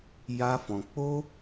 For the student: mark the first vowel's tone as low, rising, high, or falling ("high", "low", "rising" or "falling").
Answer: high